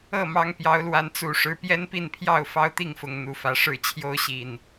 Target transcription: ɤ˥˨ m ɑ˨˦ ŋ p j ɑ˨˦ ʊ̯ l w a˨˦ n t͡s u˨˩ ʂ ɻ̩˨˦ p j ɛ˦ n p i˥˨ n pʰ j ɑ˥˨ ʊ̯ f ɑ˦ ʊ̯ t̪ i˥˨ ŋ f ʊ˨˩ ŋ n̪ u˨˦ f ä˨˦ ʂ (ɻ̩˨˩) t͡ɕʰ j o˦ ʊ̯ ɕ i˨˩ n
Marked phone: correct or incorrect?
incorrect